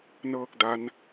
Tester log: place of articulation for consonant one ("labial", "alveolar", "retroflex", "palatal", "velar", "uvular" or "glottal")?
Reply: alveolar